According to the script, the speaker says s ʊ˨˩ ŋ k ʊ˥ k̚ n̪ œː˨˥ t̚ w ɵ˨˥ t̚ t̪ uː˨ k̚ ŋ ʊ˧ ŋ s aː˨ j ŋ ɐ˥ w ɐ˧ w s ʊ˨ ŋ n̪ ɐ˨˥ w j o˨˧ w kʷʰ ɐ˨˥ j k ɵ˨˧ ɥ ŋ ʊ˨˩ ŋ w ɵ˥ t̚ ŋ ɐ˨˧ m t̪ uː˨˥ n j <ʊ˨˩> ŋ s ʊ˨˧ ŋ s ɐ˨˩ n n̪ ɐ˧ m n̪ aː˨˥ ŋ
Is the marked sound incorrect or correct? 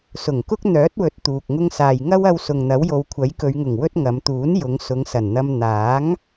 incorrect